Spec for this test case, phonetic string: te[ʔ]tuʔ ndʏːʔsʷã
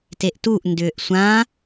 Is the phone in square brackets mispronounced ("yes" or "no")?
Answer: no